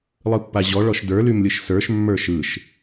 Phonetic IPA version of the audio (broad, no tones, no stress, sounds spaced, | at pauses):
lˠ ɯ pː a ʑ ɔ ɭ ɔ ʃ d ə˞ l y m lʲ ɯ ʃ s ə˞ ʃ mː ə˞ ʃ ɯ ʃ